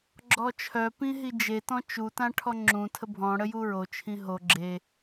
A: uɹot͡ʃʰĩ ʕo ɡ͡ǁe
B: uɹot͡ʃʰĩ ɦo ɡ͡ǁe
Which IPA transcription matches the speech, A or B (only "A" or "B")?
B